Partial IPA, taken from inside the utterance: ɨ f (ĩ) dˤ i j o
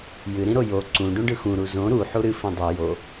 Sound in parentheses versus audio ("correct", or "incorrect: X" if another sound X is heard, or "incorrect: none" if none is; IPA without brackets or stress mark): correct